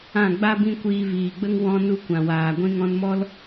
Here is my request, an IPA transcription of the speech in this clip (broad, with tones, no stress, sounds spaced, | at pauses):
ã˦˨ ɡ͡b a˦ b ĩ˦ kʷ iː˧ v iː˨ ɡ͡b ə˦ ŋ w ɔ̃˦ n u˦ kʷ ã˨ w aː˨ ɡʷ ĩ˦ ŋ ɔ̃˧ n m ɔ˦ l